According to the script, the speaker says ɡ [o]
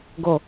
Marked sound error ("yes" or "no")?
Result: no